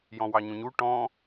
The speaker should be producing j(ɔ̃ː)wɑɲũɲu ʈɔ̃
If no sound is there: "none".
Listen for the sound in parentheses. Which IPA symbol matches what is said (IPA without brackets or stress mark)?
ɔ̃